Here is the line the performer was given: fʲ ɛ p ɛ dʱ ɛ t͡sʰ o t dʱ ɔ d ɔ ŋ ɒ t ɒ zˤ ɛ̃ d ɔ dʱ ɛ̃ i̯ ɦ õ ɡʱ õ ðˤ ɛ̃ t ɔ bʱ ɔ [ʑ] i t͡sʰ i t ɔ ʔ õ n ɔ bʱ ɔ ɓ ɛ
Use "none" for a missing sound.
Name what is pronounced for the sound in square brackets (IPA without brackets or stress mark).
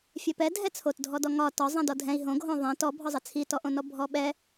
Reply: zˤ